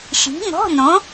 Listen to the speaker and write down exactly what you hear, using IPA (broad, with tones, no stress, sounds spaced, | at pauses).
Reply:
ʃ i̤˨˥ ŋ ɔ̤˧˥˧ n̪ õ˨˥